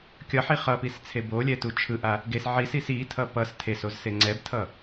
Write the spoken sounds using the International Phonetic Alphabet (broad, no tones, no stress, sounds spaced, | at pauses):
kʲ ʌ ħ i χ ʌ p i s t͡sʰ e b o lʲ ɛ t u t͡ʃʰ ɯ ʔ a | ɡ e s ʕ i s i s i tʰ ʌ p ʌ s tʰ e s o z s e ŋ͡ǀ ɛ b tʰ ʌ